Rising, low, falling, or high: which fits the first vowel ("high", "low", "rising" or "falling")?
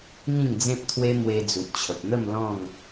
falling